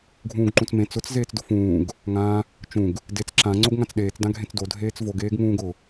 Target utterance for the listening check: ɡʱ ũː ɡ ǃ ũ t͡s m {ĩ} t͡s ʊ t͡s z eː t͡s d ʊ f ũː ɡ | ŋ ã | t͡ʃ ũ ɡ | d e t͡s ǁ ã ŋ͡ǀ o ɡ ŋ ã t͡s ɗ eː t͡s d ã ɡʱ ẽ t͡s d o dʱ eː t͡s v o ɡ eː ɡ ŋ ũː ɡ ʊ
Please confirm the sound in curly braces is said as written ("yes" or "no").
no